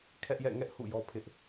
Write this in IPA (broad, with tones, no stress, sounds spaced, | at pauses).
kʰ ɛ˦ ʔ j ɛ̰˦˨ ŋ ɛ˦ ʔ h ṵ˦˨ j ɔ˦ pʰ ɪ˦ ʔ